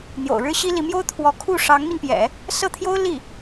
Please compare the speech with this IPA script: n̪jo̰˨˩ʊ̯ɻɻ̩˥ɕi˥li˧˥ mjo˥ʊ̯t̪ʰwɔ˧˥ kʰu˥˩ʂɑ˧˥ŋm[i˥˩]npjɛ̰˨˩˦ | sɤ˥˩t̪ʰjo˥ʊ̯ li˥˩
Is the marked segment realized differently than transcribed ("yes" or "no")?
yes